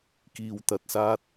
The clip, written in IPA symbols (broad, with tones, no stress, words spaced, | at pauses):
kiː˨wt̪ɐ˨t̚saː˧t̚